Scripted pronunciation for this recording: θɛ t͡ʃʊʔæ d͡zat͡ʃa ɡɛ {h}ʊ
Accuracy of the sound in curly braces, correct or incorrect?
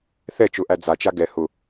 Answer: correct